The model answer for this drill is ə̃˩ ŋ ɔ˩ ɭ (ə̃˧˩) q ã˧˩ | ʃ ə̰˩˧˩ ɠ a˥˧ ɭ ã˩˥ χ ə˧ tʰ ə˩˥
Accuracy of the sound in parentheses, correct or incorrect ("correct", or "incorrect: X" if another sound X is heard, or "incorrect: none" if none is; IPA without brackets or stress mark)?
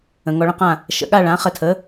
correct